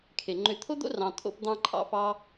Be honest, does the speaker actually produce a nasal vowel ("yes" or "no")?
yes